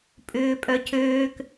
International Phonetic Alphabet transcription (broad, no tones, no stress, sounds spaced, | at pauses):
pʼ ʏː pʼ œ cʰ øː k